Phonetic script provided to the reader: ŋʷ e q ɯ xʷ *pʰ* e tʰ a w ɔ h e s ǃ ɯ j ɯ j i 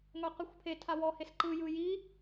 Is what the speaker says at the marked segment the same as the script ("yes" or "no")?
yes